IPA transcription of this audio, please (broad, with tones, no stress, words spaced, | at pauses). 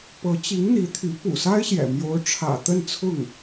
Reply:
pɤ˧˥t͡ɕi˧˥ŋn̪i˧˥t̪ʰy˧˥ pṵ˨˩sa˥ɪ̯ɕjɛ̰˨˩ mjo˧˥ʊ̯ʈ͡ʂʰä̰˨˩ t̪ə˥˧nt͡sʰʊ˥˩ŋ